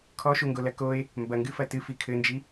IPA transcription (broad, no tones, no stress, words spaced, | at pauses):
kʰɔʃuŋɡolɐ koe̯ | mbɐŋɡɨfɐ tɨfi kʰɘnd͡ʒi